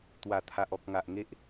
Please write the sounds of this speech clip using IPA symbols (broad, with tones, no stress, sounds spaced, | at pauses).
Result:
t̪ w a˨˩ t̪ʰ a˨ ʔ ɔ˨ k̚ ŋ a˨ ʔ ŋ e˦ ʔ